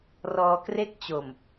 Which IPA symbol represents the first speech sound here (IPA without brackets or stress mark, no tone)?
r